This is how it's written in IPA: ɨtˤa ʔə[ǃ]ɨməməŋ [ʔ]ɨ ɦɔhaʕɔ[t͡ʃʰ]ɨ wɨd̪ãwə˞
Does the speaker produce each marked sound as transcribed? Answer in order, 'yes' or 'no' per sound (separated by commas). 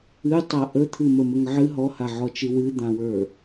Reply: no, no, no